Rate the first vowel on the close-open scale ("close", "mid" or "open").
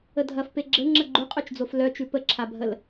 mid